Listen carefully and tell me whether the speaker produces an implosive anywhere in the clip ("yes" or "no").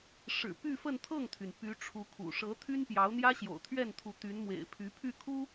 no